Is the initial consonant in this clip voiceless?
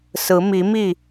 yes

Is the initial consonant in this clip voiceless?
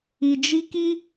no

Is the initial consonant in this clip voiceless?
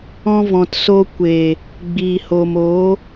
no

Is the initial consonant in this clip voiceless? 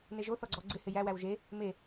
no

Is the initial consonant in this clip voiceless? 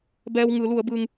no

